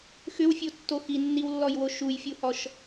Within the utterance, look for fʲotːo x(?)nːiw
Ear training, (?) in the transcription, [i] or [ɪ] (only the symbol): i